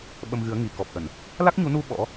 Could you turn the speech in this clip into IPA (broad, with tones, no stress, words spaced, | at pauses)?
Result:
ɓə˧mɣɨ˨˦ə̯ ŋi˨˩kɔ˨˩p̚ʔə˧˩˨n | la˦˥k̚ɲu˨˦nu˧ ɓɔ̰˧˥